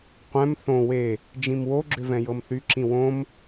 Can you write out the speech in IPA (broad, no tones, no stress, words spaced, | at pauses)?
qʷɛ̃m θõ we | d͡ʒĩmwoɡ͡ǁʏ vɛ̃jɤmθyǁĩ wõm